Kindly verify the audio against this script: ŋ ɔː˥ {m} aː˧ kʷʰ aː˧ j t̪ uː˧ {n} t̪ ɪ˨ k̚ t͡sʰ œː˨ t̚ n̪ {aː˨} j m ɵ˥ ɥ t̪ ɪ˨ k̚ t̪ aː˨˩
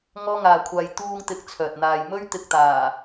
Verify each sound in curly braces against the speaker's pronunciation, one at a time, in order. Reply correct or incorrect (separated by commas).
incorrect, incorrect, correct